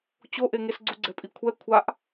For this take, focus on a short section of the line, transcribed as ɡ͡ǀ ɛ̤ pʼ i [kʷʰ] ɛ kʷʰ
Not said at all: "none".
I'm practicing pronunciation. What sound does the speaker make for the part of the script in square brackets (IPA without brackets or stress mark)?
kʷʰ